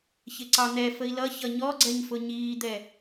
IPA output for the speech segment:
ç ɪ ǀ ɑ n̪ ɛ f ə i̯ l ʌ ç ʌ ɲ ɔ ɡ͡ǀ ɛ ɲ f ʊ ɲ iː d̪ ɛ

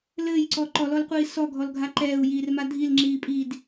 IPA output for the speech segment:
l ɘː j ǀ ɔ ǃ ɔ l ɔ l qʷ iː s ɔ ɡʱ ɔ l ɡʱ a ǃ ɛː u̯ j iː r m a dʱ i l ŋ͡ǁ iː pʼ iː d

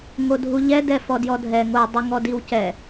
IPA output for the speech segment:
ŋ o dʱ u ʎ ɛ d ɛ f ɔ d j ɔ dʱ ɛ ŋ o dˤ ɪ ŋ ɔ d i w c ɛ

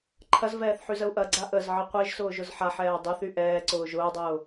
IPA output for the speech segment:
ǃʰ ɐ z v ɛː θ ħ y z ə u̯ ʔ ɐ ɡ͡ǀ a ʔ ə z ʕ ə qʷ e ʒ s ʊː ʒ ʊ z ħ a ħ ɛː dˤ y θ y ʔ ɛː ǀ ʊː ʒ ʊː dˤ ʊː

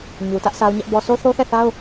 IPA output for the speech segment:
ɲ u˨ t ä˦ ʔ sʰ a˦ ʊ̯ ɲ ɛ˦ ʔ b ɔ˦ sʰ o˦ θ o˦ θ ɛ˦˨ θ a˦ ʊ̯

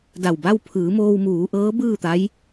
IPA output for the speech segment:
d a˧˩ w b a˥˨ w pʰ ɯː˩˧ m oː˧ w m uː˩˧ ʔ ɤː˧˥ b ɯː˥˨ t̪ a˧˥ j

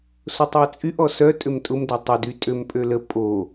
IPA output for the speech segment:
s o tˤ w ə t͡sʼ y ʔ ɔ s œ tʼ ʏ m tʼ ʊ m d ɛ tˤ ə d y tʼ ø m pʼ ø l ə pʼ o

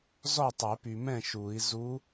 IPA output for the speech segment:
z ɔ˥˩ tˤ ɛ˨˩˦ p y˨ m ɛ̃˥˩ ʃ u˨˩˦ i̯ z u˧˥

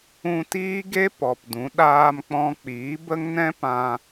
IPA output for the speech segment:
ũ˧ t iː˦ ɡ e˦ p ɔ˨ p d ũ˨˦ ɗ aː˧ m k͡p ɔ̃˧ k͡p iː˨˦ b ə˦ ŋ n ɛ̃˦ p ã˧

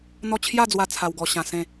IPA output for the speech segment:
n̪ ɔ˥˧ t͡ɕʰ j a˥˧ d͡z w a˧ t͡sʰ a˧ w ɡ ɔ˧ ɕ ã˧ s ẽ˥˧

